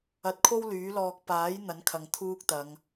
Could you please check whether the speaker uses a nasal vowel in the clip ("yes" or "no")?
no